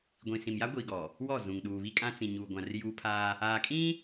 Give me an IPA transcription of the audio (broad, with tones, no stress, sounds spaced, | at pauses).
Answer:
ɡʷ ĩ˨ s ĩ˨ m j a˦ ɡʷ iː˨ ɡ ɔ˨ | w ɔ˦˨ z ũ˨ ŋ ɗ uː˨ β i˦ kʼ ã˦ t͡s ĩ˨ ɲ uː˨ ɡʷ ã˨ r j uː˦ pʰ aː˦ | aː˨ kʼ ĩ˦